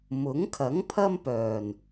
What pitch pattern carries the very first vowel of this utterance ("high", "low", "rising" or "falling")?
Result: rising